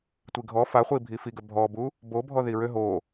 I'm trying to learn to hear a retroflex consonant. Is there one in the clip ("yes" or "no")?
no